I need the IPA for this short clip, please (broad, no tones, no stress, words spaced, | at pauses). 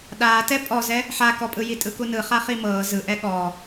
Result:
ɗaːtɛ pʼɔzɛ | ħakɔpʼɯ jitʼɯkunɯ χaχimɤː zɯʔɛ ɠɔː